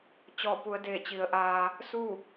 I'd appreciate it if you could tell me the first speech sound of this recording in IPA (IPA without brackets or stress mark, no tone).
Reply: t͡ɕ